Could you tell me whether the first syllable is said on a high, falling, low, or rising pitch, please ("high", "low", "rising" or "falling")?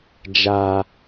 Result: low